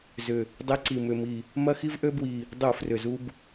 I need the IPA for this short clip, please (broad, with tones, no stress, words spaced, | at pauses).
zʏ˨˩ | dˤe˧ǀi˨˩ mʏ˨˩mi˨˩ | mɐ˧xi˧vʔø˧bwi˨˩ | dˤu˧˩˧frʏ˨˩zu˧b